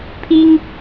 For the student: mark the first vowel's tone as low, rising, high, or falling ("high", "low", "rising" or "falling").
high